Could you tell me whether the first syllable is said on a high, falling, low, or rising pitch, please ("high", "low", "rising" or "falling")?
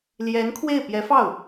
rising